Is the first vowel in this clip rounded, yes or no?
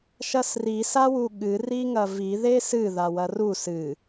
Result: no